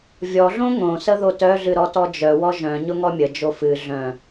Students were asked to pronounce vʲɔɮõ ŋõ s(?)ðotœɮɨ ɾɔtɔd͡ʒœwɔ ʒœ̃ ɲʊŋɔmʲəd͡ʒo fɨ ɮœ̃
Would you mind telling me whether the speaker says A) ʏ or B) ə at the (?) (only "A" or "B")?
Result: B